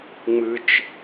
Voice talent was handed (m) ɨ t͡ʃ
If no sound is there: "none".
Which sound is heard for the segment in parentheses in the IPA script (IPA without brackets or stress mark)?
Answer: ŋ͡m